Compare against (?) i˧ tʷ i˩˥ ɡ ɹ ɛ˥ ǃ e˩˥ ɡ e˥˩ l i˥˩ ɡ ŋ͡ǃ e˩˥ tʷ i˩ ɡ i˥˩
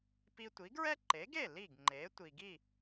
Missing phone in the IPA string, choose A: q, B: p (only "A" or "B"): B